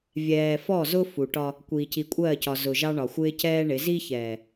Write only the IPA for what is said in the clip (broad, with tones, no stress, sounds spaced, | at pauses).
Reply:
vʲ ɛː˨ f ɔ˦˨ z ʊ˦ f u˨ ʈ ɒ˦ | kʷ iː˨ c i˨ kʷʼ ɜː˦˨ c ɒ˨ z ʊ˨ ʒ ɑ˦ ɳ ɒ˨ xʷ ɪː˦ c ɛː˦ ɳ ɪ˨˦ z i˦ ç ɛː˨